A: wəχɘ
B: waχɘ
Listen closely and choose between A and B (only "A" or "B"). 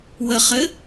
A